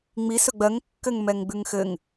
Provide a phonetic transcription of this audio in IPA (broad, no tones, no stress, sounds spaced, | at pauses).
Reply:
ŋ͡m i s ɵ ɡ͡b ɜ ŋ kː ɘ ŋ m ɛ ŋ ɡ͡b ʉ ŋ x ɘ ŋ